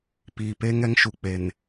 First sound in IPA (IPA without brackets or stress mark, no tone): p